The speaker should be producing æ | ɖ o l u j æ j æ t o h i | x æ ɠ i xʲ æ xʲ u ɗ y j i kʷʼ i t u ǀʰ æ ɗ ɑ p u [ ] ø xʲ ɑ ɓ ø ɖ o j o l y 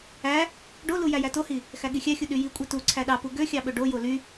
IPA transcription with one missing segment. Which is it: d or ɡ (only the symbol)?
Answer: ɡ